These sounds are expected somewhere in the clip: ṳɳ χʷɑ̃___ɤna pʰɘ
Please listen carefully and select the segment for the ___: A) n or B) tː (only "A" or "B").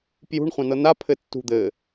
A